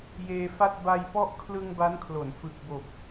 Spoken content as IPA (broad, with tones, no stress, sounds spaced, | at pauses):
j eː˧ f a˥˩ t̚ b a˧ j p ɔ˦˥ ʔ kʰ l ɯ˧ ŋ b a˦˥ n kʰ l o˩˦ n f ɯ˨˩ k̚ b o˨˩ k̚